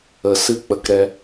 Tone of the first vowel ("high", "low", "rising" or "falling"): low